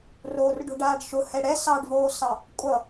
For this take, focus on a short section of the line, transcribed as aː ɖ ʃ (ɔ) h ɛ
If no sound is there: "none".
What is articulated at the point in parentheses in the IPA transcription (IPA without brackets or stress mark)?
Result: ʊ